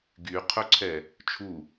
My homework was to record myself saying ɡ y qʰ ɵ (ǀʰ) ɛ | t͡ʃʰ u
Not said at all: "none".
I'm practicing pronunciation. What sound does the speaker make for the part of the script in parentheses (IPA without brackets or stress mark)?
ǀʰ